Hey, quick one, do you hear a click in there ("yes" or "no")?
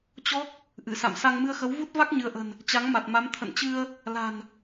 no